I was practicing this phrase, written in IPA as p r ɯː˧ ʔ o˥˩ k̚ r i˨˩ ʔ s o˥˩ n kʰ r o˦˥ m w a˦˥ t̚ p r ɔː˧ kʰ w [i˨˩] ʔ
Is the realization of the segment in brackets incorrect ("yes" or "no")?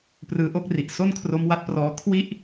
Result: yes